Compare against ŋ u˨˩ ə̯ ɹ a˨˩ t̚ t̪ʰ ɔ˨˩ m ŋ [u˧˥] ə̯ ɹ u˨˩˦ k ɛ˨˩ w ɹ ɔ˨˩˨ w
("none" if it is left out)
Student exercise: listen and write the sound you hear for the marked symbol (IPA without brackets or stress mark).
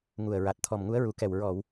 u˧˥